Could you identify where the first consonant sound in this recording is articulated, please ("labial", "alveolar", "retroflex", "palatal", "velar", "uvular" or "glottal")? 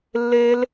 alveolar